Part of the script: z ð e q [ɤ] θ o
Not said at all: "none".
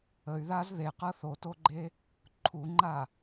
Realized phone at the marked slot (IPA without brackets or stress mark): ɤ